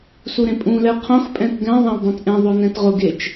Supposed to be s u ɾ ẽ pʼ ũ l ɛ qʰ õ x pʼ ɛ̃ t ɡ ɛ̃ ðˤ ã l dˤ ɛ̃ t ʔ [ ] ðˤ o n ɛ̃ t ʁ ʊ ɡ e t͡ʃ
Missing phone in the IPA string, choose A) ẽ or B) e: A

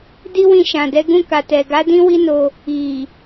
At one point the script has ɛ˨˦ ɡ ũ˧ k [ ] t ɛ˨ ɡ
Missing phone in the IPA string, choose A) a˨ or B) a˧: A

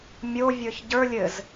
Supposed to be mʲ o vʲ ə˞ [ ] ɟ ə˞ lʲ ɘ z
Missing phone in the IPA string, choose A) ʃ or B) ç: B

